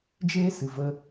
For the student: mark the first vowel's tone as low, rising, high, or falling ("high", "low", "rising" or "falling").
high